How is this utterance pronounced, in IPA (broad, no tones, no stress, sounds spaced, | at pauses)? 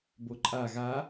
b o ǃʼ a ɣ a